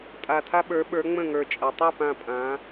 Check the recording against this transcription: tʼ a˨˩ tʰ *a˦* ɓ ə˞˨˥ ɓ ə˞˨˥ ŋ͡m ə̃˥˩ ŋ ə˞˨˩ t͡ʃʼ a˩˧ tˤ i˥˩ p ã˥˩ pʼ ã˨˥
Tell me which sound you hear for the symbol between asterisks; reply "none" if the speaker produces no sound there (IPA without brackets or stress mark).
a˦